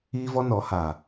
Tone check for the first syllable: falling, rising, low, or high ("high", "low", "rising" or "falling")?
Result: high